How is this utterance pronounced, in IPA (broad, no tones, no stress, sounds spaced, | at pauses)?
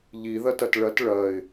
ʎ i ð ɐ t ɐ t ɭ ɐ t ɭ ɐ ɪ̯